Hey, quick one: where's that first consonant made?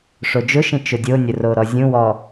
retroflex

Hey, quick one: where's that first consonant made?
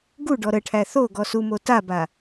velum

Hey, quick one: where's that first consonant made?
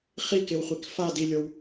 uvula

